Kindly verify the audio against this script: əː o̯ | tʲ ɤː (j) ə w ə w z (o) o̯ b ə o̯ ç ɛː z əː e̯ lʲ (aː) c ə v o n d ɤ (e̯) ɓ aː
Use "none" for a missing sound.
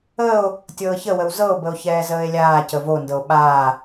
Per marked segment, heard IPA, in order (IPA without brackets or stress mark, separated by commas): ç, ɤ, aː, o̯